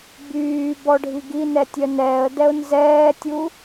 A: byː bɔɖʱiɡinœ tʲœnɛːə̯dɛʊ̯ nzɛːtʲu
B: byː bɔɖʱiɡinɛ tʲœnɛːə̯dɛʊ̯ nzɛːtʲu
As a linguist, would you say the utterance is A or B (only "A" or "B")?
B